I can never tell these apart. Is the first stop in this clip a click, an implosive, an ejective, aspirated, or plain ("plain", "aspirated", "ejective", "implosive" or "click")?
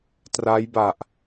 plain